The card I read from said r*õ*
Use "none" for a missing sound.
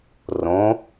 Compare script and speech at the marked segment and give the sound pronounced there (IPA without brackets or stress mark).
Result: õ